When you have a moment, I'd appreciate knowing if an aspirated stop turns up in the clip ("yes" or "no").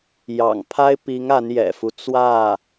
yes